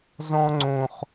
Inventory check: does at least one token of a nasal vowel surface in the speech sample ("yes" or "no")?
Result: yes